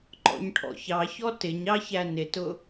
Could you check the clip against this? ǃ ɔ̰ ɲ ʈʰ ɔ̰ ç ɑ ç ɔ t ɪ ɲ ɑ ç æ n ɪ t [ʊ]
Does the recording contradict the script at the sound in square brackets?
no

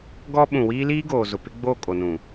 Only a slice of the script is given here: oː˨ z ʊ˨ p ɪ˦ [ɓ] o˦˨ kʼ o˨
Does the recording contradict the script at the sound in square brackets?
yes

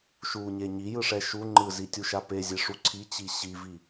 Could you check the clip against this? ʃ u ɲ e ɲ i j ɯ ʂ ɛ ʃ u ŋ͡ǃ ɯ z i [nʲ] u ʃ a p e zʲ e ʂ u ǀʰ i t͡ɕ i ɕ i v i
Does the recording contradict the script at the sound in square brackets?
yes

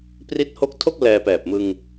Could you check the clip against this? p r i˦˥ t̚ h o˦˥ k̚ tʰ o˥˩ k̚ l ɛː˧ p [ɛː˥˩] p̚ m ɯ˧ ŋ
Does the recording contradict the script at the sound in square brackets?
yes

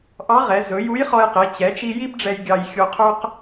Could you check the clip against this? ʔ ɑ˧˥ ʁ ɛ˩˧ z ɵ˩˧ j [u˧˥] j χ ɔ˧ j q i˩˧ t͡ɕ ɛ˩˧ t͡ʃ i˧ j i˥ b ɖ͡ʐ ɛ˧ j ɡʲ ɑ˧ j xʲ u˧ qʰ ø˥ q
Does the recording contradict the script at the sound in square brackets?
no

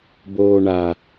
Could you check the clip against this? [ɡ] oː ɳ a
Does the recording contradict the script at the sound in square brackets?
yes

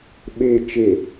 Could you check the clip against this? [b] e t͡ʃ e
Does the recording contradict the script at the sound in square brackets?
yes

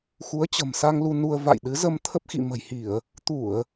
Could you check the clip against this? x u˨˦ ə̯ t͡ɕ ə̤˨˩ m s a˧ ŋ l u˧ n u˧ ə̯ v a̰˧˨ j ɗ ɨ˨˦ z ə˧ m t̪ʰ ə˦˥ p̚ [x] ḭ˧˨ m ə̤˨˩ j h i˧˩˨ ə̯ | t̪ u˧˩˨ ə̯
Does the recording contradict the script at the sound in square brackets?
no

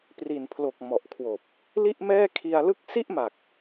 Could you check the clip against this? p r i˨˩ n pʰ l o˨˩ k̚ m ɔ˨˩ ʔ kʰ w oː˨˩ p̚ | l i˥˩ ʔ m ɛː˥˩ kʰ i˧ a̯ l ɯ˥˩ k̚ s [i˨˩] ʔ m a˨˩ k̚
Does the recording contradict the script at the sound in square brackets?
yes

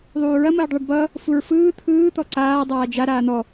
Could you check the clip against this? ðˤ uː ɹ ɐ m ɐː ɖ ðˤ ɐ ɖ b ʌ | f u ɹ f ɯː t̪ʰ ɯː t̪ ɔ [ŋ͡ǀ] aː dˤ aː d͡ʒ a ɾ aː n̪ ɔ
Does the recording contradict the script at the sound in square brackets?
yes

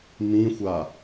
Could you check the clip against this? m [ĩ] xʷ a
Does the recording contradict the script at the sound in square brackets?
no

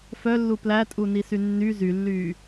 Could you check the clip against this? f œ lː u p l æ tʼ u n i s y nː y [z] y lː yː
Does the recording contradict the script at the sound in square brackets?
no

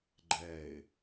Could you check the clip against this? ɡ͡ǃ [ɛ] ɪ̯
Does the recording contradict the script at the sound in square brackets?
no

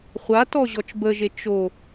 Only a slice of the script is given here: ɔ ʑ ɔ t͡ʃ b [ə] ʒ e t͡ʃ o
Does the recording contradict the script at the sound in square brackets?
no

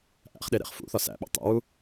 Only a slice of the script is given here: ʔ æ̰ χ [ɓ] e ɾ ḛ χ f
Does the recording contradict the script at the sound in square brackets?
yes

